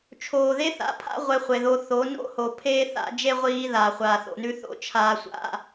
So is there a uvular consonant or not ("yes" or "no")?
yes